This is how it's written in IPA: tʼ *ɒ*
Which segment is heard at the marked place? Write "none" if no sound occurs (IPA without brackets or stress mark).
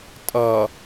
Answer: ʌ